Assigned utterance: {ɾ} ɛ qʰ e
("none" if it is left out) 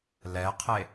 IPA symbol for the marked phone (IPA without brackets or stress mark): l